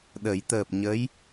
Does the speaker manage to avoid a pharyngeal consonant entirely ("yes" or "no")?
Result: yes